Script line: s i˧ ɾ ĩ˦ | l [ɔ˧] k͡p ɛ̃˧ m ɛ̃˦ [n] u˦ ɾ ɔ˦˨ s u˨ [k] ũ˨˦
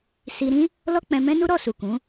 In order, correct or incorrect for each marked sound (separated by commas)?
incorrect, correct, correct